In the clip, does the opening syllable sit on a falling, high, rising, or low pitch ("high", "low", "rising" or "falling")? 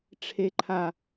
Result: low